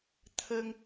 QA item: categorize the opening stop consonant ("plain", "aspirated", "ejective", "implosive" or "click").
aspirated